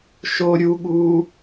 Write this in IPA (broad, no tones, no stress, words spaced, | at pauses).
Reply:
ʃo ɾʲuɠuː